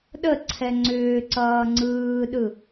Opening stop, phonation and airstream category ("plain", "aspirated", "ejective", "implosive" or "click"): implosive